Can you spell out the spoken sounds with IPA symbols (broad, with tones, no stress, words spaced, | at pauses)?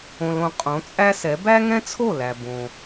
õ˧lõ˧ qʼõ˩˥t͡sʼæ˥sɛ˩˥ bæ˥ŋɛ̃˥t͡sʰo˥˩ læ˩ bõ˩